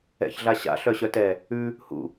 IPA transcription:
ɛ̰ ç ɮ a ɕ a̰ ɬ œ ɕ œ t ɛ | ʉ | h ṵ

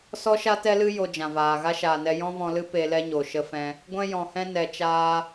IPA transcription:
s ɔ˦ ʃ a˦ t ɛ˦ l ɨ˦ j o˧ d͡ʒ ã˨ v aː˨ ɣ a˦ ʃ aː˨ n ɛ˧ j ɔ̃˦ v ɔ̃˧ l ɨ˦ p e˧ l ɛ˦ ɲ o˨ ʃ ə˧ f ɛ̃˧ | ɡʷ ɛ̃˦ j ɔ̃˨ h ɛ̃˦ n ɛ˨ t͡ʃ aː˧

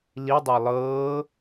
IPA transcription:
l i dˤ ɤ lˠ ɤː

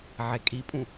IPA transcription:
ʕ e kʼ i pʼ ũ

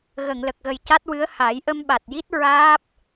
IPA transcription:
ɣ ə˨˩˨ ŋ l ə˨˩ k̚ ɣ ə˨˩ j c a˦˥ t̚ w ɨ˧˥ ə̯ h a˨˩˦ j ʔ ə˧ m ɓ a˨˩ t̚ j i˦˥ t̚ ɹ aː˦˥ p̚

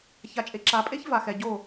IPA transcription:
ç a˨ t͡ʃʼ e˨ ǁ a˨ pʼ e˦ ç v a˨ x ɛ˨ ɟ o˦˨

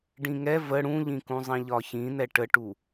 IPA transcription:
ɖ ĩ ŋ ɛ v ə ɽ ũ ʎ ĩ k ũ zˤ ĩ ʎ ɒ ç ĩ n̪ ɛ ʈ ə ʈ u

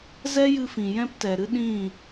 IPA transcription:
z ɛ˦ j ɨ˧ f ĩ˨ j ɛ̃˦ p t ɛ˨ ɾ ɨ˦ ɗ ĩ˦˨

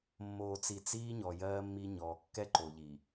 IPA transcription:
mː oː˨ t͡s i˨ t͡s iː˦ ɲ ɔ˨ j ɜː˦ mː i˦ ɲ ɔː˨ kː ɛ˦ ǃ o˨ ʎ i˨

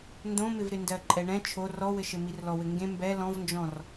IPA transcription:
n d õ m ɪ v ɾ ɪ n d ɜ ǃʼ ɛ ɳ ɛ̃ t͡ʃʰ o r ɔ w ɘ ʃ ɘ m i r l ɔ w ɘ ŋ ɡ ẽ m b ɛ l ɔ̃ v n d͡ʒ ɔ̃ r

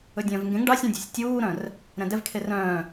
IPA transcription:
ɵ dʲ œ̃ː v ŋ ɡ ẽ ŋ ɖ ɑ sʲ ũ dʲ e̤ sʲ tʲ uː ɾ œ̃ r | ɾ ɛ̃ d ɛ v kʰ e r œ̃ː

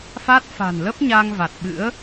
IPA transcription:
f a˦˥ t̚ f a̤˨˩ n l ə˦˥ p̚ ɲ a˧ ŋ v a˨˩ t̚ ɓ ɨ̰˧˥ ə̯

